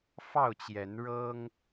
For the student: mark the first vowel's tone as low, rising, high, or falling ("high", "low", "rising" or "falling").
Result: falling